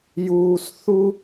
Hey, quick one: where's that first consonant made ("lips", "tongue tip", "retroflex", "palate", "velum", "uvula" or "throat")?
palate